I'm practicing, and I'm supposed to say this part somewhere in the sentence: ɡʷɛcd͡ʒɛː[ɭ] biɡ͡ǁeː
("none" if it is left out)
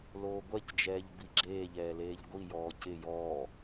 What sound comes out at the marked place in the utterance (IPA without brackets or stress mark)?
ʎ